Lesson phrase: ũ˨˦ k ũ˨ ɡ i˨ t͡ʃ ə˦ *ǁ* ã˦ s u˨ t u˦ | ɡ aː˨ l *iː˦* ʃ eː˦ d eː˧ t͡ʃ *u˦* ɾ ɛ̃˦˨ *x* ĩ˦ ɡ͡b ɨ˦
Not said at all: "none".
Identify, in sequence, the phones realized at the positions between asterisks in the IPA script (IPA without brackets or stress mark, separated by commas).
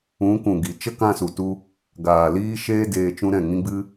k, iː˦, ũ˦, ŋ